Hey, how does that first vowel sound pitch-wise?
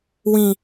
high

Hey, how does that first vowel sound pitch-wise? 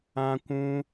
high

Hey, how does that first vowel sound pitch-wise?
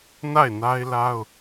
falling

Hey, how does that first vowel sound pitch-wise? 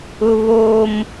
high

